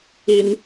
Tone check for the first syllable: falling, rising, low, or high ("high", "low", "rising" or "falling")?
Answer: high